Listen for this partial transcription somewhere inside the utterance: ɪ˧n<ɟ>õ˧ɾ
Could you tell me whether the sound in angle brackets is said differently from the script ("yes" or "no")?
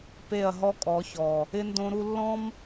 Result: yes